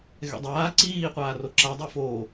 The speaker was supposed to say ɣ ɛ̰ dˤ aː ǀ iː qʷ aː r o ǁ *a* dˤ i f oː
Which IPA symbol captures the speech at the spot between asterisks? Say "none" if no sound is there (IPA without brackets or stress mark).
a